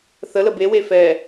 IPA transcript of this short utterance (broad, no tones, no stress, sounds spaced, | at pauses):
θ ə l ə b e w e f ɛ